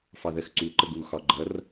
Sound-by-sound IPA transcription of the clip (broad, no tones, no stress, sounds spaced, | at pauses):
f ɑ ð ɜ x ǀ u ǃ ə ɡ u x ɒ ɡ͡ǃ ʌ r